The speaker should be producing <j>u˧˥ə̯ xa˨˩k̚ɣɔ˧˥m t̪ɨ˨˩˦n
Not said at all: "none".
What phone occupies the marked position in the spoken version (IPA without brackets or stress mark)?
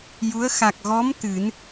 j